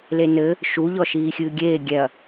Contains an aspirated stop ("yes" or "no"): no